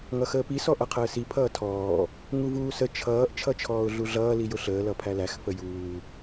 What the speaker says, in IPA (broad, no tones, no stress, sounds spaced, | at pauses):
ŋ ʌ x əː p i s ɔ ʔ ʌ qʰ əː s i pʰ ʌː tʰ ɔː | ŋ u v uː s ə t͡ʃʰ ʌː ʔ t͡ʃʰ ʌ t͡ʃʰ ɔː ʊ̯ ɮ u ɮ ʌː l i j ʊ ɬ əː l ʌ pʰ æ l æ x f ə j uː